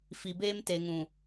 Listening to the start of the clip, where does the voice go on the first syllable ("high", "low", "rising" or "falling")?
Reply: low